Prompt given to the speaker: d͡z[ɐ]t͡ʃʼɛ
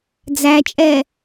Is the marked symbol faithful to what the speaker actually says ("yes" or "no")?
no